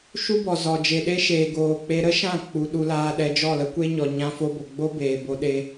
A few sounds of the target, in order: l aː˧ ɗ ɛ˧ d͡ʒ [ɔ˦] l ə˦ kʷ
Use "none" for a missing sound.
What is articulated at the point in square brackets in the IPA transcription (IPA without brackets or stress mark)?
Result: ɔ˦˨